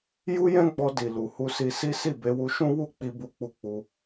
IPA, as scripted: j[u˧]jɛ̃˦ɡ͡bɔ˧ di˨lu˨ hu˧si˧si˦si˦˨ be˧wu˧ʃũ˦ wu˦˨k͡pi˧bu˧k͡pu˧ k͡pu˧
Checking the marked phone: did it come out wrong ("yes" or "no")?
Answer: yes